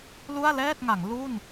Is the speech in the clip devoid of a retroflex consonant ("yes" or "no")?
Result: yes